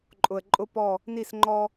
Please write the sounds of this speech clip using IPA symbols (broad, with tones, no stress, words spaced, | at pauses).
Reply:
ǃʼʊ˨ə̯ǃʼʊ˦pɔ˦˨ | ni˦˨sŋ͡ǃɔ˦